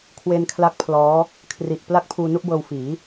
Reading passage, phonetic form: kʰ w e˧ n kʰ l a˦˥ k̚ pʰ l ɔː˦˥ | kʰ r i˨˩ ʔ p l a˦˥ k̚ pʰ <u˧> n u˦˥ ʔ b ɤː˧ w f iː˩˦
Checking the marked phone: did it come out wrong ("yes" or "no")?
yes